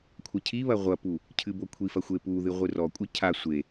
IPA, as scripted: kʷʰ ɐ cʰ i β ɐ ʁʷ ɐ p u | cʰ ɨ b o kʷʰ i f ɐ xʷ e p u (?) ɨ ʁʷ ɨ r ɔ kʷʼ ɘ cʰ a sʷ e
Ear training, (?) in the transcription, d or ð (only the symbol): ð